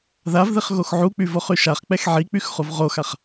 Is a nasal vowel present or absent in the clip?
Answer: absent